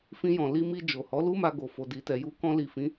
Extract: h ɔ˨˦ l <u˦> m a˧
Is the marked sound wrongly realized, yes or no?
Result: no